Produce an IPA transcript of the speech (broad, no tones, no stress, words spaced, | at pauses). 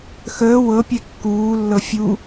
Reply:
xəː wɤpʲɛ kːuːlːɤ fʲu